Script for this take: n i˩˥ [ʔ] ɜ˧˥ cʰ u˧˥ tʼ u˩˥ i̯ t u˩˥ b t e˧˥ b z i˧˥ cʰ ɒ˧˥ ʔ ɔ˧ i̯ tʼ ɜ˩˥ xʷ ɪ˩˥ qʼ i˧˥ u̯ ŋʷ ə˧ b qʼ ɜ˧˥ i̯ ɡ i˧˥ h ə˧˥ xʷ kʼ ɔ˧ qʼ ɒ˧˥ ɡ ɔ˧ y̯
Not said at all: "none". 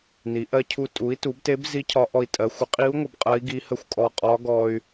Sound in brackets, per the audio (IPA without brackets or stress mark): ʔ